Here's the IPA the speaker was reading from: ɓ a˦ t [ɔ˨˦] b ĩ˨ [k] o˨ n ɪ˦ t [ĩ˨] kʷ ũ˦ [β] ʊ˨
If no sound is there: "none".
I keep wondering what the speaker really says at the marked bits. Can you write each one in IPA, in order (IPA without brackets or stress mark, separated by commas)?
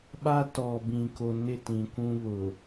ɔ˨, k, ĩ˨, β